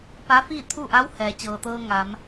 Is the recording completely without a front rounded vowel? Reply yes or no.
yes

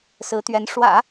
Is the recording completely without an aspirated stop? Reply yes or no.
yes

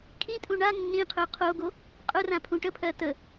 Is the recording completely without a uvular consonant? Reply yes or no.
no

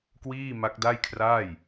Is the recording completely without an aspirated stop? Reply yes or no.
no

